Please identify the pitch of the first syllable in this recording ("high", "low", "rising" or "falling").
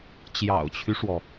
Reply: low